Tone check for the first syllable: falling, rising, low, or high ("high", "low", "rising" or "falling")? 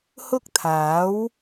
high